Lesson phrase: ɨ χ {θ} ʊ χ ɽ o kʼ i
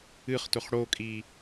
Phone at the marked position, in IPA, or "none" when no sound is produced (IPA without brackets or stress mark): t